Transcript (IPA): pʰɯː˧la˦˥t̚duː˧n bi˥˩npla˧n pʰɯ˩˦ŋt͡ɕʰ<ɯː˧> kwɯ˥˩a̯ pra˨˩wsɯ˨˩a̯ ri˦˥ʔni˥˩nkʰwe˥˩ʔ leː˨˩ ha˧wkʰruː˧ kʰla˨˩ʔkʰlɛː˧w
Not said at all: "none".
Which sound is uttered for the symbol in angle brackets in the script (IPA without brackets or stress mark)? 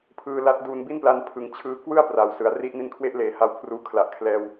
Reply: ɯː˧